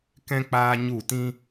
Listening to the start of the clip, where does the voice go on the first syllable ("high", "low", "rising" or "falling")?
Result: high